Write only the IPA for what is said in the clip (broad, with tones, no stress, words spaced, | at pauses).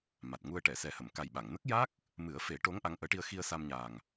ma˨˩t̚ŋu˧ə̯ ʈɛ˨˩˨sɛ˨˩hə˨˩˨mka˨˩j ɓa˨˩˨ŋ nə˦˥k̚ja˦˥k̚ | mɨ˨˩˦ə̯fe˨˩˦ ʈo˧˥ŋ ʔa˧˥ŋʔəː˧˥ʈi˧ə̯ xi˧ə̯ sa˧mɲaː˨˩ŋ